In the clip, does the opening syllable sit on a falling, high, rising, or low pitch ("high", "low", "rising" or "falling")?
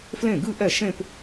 falling